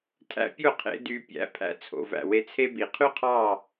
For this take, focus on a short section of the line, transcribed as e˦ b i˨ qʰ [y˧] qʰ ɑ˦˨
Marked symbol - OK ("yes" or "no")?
no